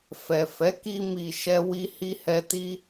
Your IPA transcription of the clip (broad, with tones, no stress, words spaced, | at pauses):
fɛ˨fɛ˨˦ ki˧mi˨ ʃɛ˧wi˧hi˧hɛ˧ ti˧